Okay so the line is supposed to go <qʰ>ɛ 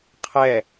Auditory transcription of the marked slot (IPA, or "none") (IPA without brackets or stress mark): qʰ